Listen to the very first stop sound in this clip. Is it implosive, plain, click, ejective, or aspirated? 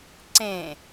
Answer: click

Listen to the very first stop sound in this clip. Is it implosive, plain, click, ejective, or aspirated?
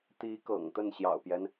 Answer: plain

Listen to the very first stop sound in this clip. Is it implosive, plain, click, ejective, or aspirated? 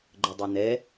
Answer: click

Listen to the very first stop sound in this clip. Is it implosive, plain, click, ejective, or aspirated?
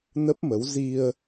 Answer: plain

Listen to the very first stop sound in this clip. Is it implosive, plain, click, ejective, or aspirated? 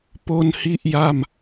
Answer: plain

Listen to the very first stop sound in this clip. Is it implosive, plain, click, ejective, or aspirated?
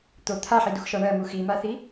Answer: plain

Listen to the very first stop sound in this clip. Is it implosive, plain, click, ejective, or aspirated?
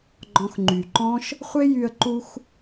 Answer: click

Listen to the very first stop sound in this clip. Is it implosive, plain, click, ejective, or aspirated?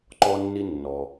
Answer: click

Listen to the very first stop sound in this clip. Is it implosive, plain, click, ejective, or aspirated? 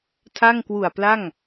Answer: aspirated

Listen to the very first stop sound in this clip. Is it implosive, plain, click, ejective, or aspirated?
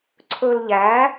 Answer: click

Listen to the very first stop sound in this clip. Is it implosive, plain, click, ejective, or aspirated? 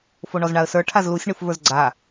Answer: aspirated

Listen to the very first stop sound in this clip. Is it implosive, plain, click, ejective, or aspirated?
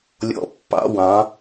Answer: plain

